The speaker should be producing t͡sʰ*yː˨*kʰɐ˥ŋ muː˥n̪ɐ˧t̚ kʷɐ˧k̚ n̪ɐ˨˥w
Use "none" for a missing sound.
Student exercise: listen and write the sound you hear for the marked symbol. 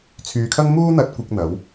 yː˨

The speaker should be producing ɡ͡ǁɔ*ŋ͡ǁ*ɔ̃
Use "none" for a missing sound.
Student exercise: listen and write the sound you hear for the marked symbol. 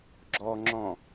ŋ͡ǁ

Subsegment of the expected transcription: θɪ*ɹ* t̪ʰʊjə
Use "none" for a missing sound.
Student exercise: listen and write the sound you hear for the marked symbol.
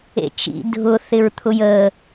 ɹ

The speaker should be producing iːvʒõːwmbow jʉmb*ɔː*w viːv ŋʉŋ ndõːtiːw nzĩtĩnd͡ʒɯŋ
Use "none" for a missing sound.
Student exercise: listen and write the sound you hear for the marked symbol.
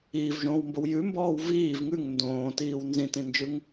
ɔː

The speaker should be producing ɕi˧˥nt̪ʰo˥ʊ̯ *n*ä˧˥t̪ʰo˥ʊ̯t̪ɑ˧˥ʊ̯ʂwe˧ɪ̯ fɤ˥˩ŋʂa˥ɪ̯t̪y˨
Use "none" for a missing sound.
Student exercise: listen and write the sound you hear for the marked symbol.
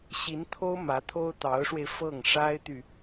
m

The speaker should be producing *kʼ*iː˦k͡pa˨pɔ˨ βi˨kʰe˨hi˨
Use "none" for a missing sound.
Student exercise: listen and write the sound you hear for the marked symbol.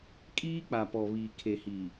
kʼ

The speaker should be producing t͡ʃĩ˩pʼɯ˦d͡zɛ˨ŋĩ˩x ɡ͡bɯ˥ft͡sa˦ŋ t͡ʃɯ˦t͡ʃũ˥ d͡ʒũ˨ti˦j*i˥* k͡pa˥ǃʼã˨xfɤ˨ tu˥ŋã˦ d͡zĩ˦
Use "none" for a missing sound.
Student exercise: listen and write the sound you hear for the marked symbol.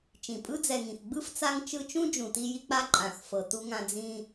i˦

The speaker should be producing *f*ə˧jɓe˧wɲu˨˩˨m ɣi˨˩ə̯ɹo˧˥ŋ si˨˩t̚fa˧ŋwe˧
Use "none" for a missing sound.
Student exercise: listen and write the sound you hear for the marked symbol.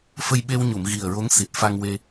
f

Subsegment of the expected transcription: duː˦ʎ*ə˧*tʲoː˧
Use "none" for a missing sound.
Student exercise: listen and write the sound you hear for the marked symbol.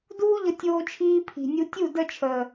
ə˧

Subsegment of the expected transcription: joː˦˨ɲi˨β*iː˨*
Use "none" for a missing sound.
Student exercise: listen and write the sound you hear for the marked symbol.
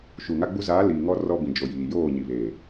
eː˨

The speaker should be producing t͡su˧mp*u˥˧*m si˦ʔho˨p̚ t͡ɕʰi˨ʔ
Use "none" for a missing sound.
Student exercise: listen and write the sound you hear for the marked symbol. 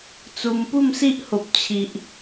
u˥˧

